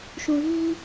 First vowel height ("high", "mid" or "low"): high